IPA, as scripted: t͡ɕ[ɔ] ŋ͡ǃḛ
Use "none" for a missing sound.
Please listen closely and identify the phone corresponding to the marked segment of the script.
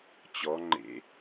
ɔ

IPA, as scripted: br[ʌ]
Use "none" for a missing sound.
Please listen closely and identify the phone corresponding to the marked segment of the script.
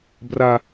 a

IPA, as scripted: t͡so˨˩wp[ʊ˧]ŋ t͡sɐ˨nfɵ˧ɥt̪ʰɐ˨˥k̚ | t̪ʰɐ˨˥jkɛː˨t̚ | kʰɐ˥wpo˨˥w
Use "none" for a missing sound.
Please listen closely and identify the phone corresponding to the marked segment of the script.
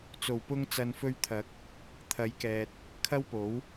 ʊ˧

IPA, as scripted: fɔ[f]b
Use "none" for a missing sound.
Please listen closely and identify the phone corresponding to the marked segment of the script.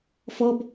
none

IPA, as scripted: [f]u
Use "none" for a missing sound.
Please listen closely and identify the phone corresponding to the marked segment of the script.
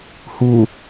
h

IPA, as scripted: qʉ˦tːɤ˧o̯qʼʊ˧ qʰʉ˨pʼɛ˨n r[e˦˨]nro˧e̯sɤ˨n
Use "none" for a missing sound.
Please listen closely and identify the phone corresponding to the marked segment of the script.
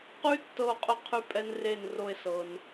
e˦˨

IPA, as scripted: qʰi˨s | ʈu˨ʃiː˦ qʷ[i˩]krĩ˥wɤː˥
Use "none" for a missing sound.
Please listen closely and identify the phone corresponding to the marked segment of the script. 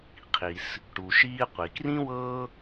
i˩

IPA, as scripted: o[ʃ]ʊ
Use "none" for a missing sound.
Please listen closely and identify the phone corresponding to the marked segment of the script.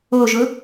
ʒ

